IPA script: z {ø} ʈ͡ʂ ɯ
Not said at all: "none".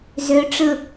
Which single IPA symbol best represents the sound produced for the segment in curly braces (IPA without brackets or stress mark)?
ø